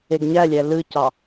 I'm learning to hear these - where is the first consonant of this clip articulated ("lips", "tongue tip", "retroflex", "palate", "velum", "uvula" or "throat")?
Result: velum